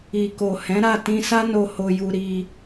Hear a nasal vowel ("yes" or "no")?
yes